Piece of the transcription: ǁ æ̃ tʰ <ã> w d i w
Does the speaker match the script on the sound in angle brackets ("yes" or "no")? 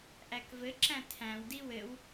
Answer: no